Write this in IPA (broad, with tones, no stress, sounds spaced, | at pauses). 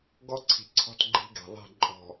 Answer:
ɡ ɔ˦ ǀʰ i̤˨ ǀʰ ɔ̤˦ t ɡ͡ǃ i̤˦ ɡ ɛ̤˨ ðˤ i̤˦˨ ǃʼ ɔ̤˨